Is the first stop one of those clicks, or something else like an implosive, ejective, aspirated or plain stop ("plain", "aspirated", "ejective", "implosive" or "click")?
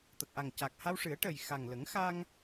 plain